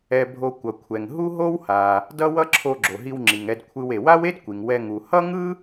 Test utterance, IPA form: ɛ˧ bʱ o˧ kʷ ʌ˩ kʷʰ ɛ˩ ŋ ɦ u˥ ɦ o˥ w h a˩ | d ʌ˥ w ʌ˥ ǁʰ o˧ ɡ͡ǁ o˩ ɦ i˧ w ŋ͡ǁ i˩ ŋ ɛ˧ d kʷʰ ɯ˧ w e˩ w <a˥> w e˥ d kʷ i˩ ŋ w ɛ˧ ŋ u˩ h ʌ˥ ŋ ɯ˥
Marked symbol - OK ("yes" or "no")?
yes